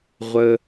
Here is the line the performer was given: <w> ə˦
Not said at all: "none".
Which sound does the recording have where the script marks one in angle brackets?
ʁʷ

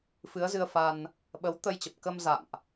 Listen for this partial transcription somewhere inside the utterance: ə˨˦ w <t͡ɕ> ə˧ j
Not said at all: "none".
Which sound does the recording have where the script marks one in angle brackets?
t̪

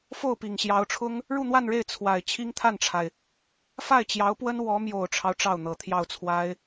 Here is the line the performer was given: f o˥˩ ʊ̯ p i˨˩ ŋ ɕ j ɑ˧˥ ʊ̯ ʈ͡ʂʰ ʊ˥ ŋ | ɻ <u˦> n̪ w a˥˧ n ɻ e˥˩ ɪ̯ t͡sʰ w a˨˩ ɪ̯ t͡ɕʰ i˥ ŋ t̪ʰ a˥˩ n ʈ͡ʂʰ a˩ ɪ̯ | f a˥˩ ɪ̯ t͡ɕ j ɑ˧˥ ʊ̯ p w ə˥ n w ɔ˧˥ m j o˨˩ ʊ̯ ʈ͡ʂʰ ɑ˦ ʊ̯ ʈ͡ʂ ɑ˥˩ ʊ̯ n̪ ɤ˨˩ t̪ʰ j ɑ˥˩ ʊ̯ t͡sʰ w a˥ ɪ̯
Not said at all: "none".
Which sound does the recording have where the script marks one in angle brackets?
u˥˧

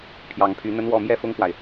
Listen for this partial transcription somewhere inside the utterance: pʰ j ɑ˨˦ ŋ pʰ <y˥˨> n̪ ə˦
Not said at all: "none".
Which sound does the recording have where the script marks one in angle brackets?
y˨˦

